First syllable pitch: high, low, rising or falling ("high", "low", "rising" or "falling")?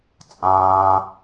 low